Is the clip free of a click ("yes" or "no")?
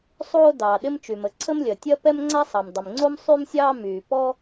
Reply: no